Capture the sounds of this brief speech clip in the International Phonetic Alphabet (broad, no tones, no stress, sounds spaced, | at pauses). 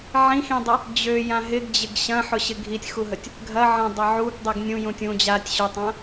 ʕ ĩ x ĩ dˤ ə | d͡ʑ ø j ã ɦ ɪ ɡ d͡ʑ ɪ ɡ ɕ ɐ̃ ħ ʊ ɕ ɪ ɡʱ i tʲ x u ɦ ə tʲ | ɡʱ ɐ ʕ ɐ̃ dˤ ɐ ʕ u ɡ dˤ i ɡ nʲ ũ j ũ tʲ ũ d͡ʑ a tʲ ɕ ʊ tˤ ã